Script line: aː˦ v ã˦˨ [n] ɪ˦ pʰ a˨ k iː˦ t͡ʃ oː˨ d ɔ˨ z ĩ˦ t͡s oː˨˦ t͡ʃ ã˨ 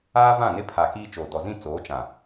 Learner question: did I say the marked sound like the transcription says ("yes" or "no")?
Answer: yes